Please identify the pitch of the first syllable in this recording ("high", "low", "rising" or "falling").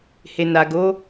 low